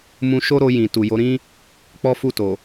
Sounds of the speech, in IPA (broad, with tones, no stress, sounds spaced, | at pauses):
m ũ˧ ʃ o˦ ɾ o˧ j ĩ˨ t u˨ j o˨˦ ɾ ĩ˦ | k͡p ɔ˦ f u˦˨ t o˨